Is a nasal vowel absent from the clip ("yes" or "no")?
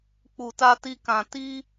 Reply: no